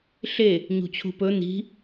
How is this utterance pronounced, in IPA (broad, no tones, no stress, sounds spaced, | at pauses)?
ɬ e | ɲ ṳ t͡ɕʰ ṳ p ɵ n̪ i̤